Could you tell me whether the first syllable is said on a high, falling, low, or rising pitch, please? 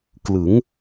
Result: rising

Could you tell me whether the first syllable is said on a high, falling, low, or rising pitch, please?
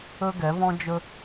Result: high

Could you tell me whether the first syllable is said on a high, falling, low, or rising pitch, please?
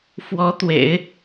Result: rising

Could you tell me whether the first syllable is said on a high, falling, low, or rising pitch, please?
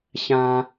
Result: high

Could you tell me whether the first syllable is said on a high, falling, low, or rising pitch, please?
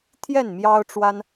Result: falling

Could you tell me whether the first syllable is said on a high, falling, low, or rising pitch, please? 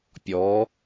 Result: rising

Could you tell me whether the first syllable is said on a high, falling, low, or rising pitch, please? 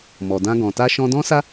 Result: low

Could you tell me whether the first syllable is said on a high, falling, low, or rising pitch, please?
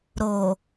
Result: low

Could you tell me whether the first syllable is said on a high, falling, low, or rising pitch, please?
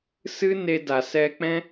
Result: high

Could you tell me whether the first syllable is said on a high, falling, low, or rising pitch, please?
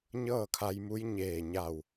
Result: falling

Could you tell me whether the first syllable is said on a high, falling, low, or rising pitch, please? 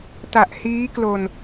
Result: low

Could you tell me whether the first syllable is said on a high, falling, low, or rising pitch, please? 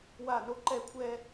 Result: falling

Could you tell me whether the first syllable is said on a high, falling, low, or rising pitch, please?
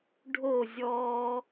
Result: falling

